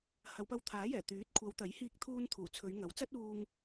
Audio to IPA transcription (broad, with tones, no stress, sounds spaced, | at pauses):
h ɐ˨˧ w p ɐ˧ w t̪ʰ aː˨˥ j ɛː˨˩ t̪ yː˨˥ t̚ kʷʰ ɐ˨˧ w t̪ ɐ˨˥ j h iː˧ k̚ t̪ʰ uː˧ n t̪ʰ uː˨˩ t͡sʰ ɵ˨˧ ɥ ŋ ɐ˨˥ w t͡s ɐ˥ t̚ uː˧ ŋ